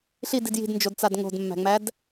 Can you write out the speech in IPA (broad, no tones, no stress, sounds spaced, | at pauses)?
ɬ i d i d j i̤ d n d͡ʒ o d t͡s a d ŋ o̤ d mː æ̤ ŋ͡m æ d